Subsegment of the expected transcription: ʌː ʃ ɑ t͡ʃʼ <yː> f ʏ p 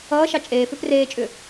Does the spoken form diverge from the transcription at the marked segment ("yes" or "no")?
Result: yes